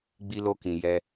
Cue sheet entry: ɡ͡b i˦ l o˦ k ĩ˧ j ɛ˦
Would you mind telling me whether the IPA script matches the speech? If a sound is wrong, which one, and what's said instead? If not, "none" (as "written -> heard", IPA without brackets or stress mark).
none